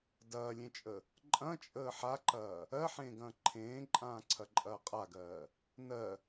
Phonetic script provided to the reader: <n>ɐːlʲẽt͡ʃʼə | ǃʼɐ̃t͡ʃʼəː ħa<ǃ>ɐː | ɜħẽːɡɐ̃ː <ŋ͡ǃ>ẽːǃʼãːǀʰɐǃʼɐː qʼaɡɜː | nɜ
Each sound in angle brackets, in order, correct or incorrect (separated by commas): incorrect, correct, incorrect